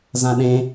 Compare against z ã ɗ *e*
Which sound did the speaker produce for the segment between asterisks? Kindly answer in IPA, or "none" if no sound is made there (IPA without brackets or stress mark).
ẽ